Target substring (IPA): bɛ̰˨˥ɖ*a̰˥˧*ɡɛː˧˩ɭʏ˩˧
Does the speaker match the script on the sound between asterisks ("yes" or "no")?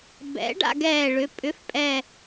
yes